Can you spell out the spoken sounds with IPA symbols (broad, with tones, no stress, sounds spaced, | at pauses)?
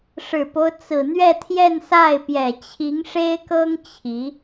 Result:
ʂ ɻ̩˨˩ p o˦ ʊ̯ t͡s ɹ̩˨˩ n̪ ɥ ɛ˥˧ t̪ʰ j ɛ˥˧ n s a˥˩ ɪ̯ p j ɛ˨˩ t͡ɕʰ i˧˥ ŋ ʂ e˥ ɪ̯ k ɤ˥ ŋ t͡ɕʰ i˧˥